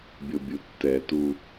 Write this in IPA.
bʲ o bʲ u tː ɛ t u

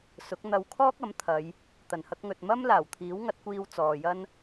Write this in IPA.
s ʊ˨˥ k̚ n̪ ɐ˧ w kʰ ɔː˥ k̚ ɐ˨˥ m t̪ʰ ɐ˨˧ j | t̪ ɐ˨˩ n h ɐ˧ k̚ ŋ ɵ˨ t̚ m ɐ˥ m l aː˨˩ w t̪ʰ iː˨˥ w ŋ ɐ˨˥ t̚ kʷ iː˧ w t͡s ɔː˨ j ɐ˥ n

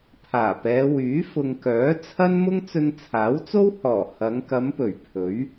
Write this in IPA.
pʰ aː˨˩ p ɛː˨˧ w yː˨˥ f ʊ˨ ŋ k œː˨˥ t͡sʰ ɐ˥ n m ʊ˥ ŋ t͡s ɵ˧ n t͡sʰ aː˨˥ w t͡s o˥ w h ɔː˨˩ h ɐ˨˧ ŋ k ɐ˨˧ m p ɵ˨˩ ɥ pʰ ɵ˨˥ ɥ

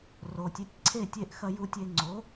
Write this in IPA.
r o˩ tʲ e˩˥ tʲ ǀʰ e˥˩ tʲ e˥˩ ʔ x ɐ˧ j u˧ tʲ e˧ ŋ͡ǀ o˩˥

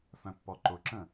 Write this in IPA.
f œ̃ pː ɔ ǃ ʊ ǁ ə̃

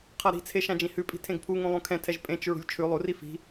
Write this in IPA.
qʰ a ɾ i̤ t͡sʰ e ʃ ã d͡ʒ ĩ h ʉ pʼ i̤ tʰ ẽ ɡ pʰ u ŋ ũ lˠ ũ kʰ ɛ̃ tʰ ɛ ʒ pʼ ẽ t͡ʃ ɹ ṳ lʲ t͡ʃʰ ʉ lˠ u r i f i̤

